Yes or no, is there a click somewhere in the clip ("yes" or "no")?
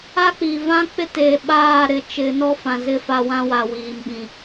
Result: no